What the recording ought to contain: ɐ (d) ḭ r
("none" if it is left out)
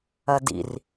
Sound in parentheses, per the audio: d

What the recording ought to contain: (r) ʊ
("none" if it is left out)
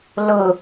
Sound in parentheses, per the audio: l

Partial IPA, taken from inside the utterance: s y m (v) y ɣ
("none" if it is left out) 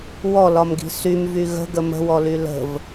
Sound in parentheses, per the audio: v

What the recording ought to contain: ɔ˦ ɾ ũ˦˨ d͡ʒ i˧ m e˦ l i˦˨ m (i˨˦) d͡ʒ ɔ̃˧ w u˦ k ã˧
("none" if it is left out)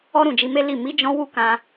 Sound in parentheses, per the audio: i˨˦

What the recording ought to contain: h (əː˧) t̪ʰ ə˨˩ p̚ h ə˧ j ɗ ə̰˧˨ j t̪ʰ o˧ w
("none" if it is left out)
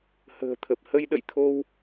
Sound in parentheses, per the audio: ə̤ː˨˩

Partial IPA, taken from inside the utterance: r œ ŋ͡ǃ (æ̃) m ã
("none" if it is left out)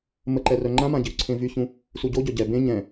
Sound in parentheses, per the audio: ã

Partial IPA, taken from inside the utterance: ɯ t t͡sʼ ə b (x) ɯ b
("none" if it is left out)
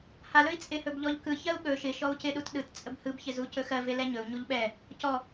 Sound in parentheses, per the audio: h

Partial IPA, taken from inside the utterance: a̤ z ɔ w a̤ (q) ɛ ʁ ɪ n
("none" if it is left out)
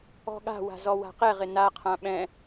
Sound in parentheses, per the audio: q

